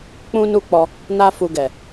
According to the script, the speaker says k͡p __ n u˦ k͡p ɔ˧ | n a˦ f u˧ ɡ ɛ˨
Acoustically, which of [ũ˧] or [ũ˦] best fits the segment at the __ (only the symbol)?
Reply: ũ˦